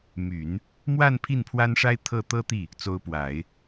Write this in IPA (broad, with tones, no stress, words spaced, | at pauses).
my˨˩˦n | mwa˥˧n pʰi˥˩npʰwa˥nʂa˥ɪ̯ t̪ʰɤ˥˩t̪ɤ˥t̪i˥˩ | t͡so˧˥ʊ̯pwa˨˩˦ɪ̯